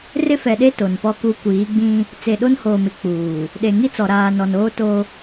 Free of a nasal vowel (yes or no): no